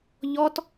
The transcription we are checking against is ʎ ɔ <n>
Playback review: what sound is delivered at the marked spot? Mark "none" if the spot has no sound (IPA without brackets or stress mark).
t